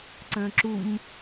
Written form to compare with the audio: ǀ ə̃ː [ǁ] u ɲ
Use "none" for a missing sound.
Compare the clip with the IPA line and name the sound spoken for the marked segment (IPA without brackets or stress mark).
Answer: ǁ